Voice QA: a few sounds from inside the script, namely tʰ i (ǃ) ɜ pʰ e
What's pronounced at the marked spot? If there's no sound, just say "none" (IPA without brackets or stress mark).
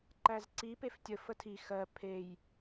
x